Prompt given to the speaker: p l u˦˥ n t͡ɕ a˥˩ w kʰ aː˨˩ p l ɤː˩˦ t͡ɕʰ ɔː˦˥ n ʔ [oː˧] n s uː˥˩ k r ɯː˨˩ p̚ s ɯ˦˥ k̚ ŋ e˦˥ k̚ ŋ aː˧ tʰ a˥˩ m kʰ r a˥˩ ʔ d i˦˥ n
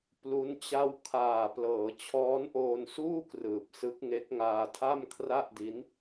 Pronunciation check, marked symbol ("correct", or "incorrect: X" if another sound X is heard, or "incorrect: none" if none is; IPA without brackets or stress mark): correct